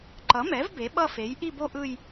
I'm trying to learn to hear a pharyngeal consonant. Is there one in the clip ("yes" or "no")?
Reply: no